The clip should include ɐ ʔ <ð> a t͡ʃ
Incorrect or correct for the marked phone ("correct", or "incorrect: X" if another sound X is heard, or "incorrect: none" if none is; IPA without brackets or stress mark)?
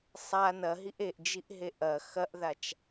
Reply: correct